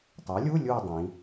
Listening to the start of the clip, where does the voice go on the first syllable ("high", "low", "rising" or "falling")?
rising